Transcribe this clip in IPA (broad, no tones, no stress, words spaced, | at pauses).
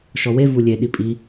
ʃɔwe vulʲe ɗipʼi